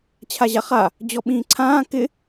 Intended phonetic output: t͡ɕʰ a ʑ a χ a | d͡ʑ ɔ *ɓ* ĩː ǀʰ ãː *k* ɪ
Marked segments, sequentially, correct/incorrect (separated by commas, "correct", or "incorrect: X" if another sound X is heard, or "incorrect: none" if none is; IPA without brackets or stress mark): correct, correct